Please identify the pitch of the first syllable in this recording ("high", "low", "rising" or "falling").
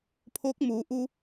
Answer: rising